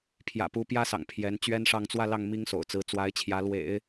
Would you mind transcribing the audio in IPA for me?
pʰ j ä̰˨˩ p u˧˥ p j ä˥ s ɑ̰˨˩ ŋ pʰ j ɛ˧˥ n t͡ɕ ɥ ɛ˥ n ʂ ɑ˥˧ ŋ t͡s w ä˥˧ l ɑ˥˩ ŋ m i˥ ŋ s o̰˨˩ ʊ̯ t͡s ɹ̩˧˥ t͡s w a˧˥ ɪ̯ t͡ɕʰ j ä˧˥ l w ḛ˨˩˦ ɪ̯

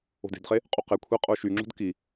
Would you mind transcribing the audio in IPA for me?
o̤ d e̤ d χ e | qʼ u q e kʷʰ i qʼ o ʃ y ŋ͡ǁ o̤ d k i

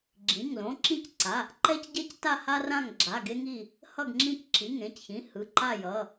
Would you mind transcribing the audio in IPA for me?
ɡ͡ǁ ĩ˩˧˩ ŋ l õ˩˧˩ ǁ ĩ˦˨ c ǀ a˩˧˩ | ǃ ɛ˦ c ɟ ɛ˦ c t a˦˨ h a˦ r ã˦˨ ŋ ɡ͡ǁ a˩˧˩ ɡ e˦ ŋ i˦˨ | h ʌ˦˨ ɡ ŋ͡ǁ ĩ˦˨ c ǁ i˩˧˩ ŋ ẽ˩˧˩ c ç ĩ˩˧˩ h ɯ˩˧˩ ǃ a˦˨ j ʌ˩˧˩

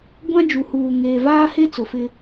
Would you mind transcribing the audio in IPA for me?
ɡʷ ã˦ d͡ʒ u˨ h uː˨ ŋ eː˨ v aː˦ h e˦ t͡s ʊ˨ f ɪ˦

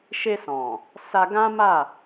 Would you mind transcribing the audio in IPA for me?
ʃ e˧ s ɔ̃˨ | s a˧ ɡ ã˦ m a˦˨

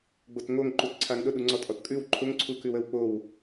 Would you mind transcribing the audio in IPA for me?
ɡ͡b o t ŋ o ŋ ǃ u t ǀʰ a ŋ ɗ ʊ ɗ u ŋ͡ǀ ɔ tʼ ɔ t kʼ ʉ w ǃʰ ʊ ŋ ǀʰ u k ʉ w ə w k͡p o w

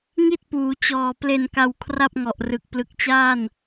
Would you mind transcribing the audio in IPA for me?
ŋ i˥˩ t̚ p uː˩˦ t͡ɕ ɔː˨˩ p l e˨˩ n k a˨˩ w kʰ r a˥˩ p̚ ŋ ɔ˨˩ ʔ r ɯ˨˩ k̚ p l ɯ˨˩ k̚ t͡ɕ aː˥˩ n

